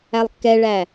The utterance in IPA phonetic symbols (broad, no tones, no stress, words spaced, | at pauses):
ælˠkːɛɭæ